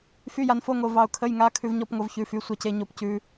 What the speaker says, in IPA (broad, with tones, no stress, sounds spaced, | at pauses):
f y˧˥˧ j a˧ n f o˧˥˧ ŋ o˧ v ɑ˧ ʊ̯ kʰ ə˧˥˧ j ŋ a˧˥˧ kʰ ʉ˧ v ɲ ɔ˧˥˧ p ŋ o˧ v ç ʉ˧˥˧ f y˧˥˧ sʷ ɑ˧ c e˧ ɲ o˧ p c ʉ˧